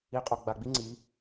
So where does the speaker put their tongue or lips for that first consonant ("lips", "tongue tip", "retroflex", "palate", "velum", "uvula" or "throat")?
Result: uvula